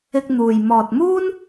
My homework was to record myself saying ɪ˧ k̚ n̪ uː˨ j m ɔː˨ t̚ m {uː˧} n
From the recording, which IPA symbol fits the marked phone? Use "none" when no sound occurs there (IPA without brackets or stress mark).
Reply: uː˥